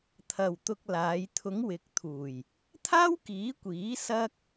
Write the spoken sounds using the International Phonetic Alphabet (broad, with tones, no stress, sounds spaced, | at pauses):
t̪ʰ ɐ˨ w t̪ ʊ˧ k̚ l aː˨˧ j t̪ʰ ʊ˨˧ ŋ w ɪ˨˥ k̚ t̪ʰ uː˨˩ j | t̪ʰ aː˥ w k iː˨˥ kʷ iː˨˥ s ɐ˥ k̚